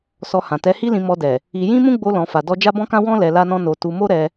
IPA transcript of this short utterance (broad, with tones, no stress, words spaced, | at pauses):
sɔ˧hã˨ tɛ˨˦hi˦lĩ˧ mɔ˧dɛ˨ | i˧ jĩ˦mũ˦ɡ͡bo˧ lɔ̃˨fa˨dɔ˧ d͡ʒa˦bɔ̃˦kã˦ wɔ̃˦ lɛ˧la˦nɔ̃˦ no˧ tu˧mo˦ɾɛ˧